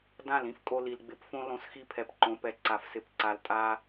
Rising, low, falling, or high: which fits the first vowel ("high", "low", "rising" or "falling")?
falling